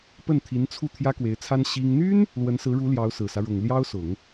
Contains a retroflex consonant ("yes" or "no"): yes